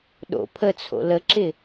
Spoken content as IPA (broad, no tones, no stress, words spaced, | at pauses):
ɗo̰ pʰət͡sʰo̰ ləǁɪ